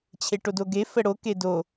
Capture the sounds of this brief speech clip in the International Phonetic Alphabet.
t͡ɕʰ e ʈ o d o ɡ e f ə ɽ o k e d o

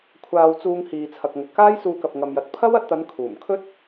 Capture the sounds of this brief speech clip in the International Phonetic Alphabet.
kʷʰ aː˧ w t͡s uː˧ ŋ h iː˨ t͡sʰ ɐ˨ k̚ ŋ ɵ˨ t̚ k aː˥ j s uː˧ k ɐ˨ p̚ ŋ ɐ˨ m j ɐ˨ t̚ pʰ ɐ˥ w ɐ˧ t̚ t̪ ɐ˨˧ n kʰ uː˨˩ m kʰ ɵ˥ t̚

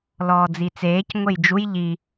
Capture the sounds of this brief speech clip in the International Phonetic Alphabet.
l ɔː d͡z i t͡s eː c ŋʷ e j d͡ʒ u j ʎ i

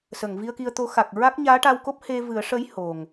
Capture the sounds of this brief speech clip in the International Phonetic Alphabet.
s ə˨˩˨ ŋ v i˧ ə̯ k i˧ ə̯ t̪ o˧˥ x a˨˩ k̚ ɹ a˦˥ k̚ ɲ aː˧˥ ʈ a˧ w k o˦˥ p̚ h e˧ v ɨ˨˩˦ ə̯ ʂ ə˧˥ j h o˨˩ ŋ

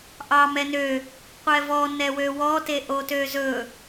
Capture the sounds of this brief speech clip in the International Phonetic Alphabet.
ʔ ɑ m ɛ n ø | qʷ ɛ v ɔ n ɛ w ø w ɔ t e ʔ o t ø z ɵ

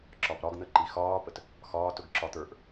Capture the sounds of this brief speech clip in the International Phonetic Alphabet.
ǁ ɒ p ɾ ɒ ɡ n̪ ə ǃ i x ɒː p ə t | x ɒː t ʊ ɡ ǁ ɒ t̪ ə˞ ʔ

